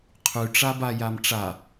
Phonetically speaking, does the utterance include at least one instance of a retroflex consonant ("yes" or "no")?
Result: yes